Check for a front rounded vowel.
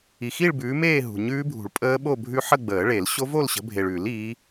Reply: absent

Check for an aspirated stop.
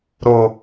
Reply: absent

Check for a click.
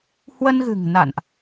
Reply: absent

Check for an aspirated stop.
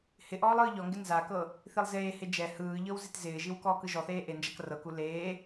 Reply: absent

